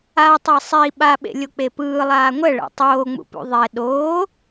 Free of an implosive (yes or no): no